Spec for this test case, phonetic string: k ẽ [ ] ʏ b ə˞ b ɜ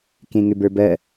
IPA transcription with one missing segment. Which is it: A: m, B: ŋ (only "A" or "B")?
B